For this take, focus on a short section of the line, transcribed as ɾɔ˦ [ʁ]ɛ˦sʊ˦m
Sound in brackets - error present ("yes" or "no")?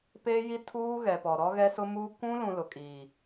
yes